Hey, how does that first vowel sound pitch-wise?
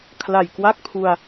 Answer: low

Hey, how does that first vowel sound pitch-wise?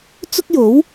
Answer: high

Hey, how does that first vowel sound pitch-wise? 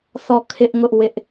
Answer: falling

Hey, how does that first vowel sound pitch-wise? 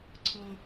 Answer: high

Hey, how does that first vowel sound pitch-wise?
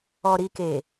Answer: low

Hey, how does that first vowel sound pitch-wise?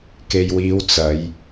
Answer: low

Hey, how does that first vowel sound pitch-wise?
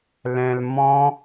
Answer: low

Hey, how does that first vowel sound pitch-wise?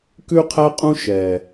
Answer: high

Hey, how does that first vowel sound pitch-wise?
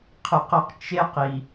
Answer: low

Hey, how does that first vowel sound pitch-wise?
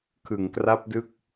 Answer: low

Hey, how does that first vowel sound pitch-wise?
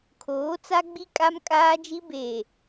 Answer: rising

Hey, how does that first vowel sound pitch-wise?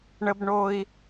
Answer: high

